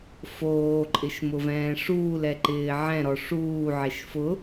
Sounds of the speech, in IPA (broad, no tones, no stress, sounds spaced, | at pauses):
f oː ǃʼ ɪ ʃ m ʊ v ɛ̃ː ʂ uː l ɛ ǃ ɪː ʕ ɛ̃ ɾ ɔ ʂ uː ʕ e ʃ f ʊ